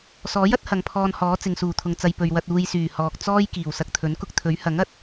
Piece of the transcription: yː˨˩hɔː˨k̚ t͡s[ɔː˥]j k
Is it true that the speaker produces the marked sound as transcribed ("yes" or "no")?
yes